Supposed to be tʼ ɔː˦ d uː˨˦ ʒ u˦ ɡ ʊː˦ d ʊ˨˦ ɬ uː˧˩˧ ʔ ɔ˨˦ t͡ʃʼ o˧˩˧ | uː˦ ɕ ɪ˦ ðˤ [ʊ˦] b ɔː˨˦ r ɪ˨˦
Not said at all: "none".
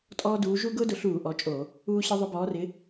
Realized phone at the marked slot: ʊ˦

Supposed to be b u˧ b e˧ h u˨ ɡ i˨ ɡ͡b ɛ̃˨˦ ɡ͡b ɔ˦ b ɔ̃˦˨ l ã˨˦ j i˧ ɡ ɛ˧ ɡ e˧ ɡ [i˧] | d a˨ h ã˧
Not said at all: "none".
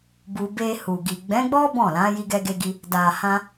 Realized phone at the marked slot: i˧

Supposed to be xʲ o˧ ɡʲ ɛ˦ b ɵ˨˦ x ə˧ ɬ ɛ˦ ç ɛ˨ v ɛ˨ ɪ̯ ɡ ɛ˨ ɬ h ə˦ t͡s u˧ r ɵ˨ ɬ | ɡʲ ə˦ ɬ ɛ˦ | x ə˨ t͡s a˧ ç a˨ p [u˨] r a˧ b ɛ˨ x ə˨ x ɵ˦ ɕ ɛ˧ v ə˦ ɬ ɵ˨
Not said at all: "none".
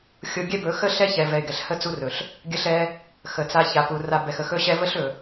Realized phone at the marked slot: u˨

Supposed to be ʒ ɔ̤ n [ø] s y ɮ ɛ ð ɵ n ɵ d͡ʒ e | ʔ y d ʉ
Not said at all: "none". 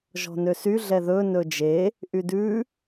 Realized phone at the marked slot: ø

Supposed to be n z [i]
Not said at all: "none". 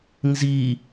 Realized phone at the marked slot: i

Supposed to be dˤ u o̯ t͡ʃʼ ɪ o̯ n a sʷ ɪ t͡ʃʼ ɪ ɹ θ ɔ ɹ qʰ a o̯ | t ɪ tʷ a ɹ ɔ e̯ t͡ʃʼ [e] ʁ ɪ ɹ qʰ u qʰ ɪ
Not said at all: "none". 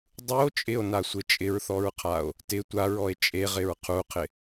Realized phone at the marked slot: e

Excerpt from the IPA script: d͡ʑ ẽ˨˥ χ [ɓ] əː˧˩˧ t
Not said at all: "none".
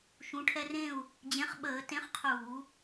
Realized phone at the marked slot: ɓ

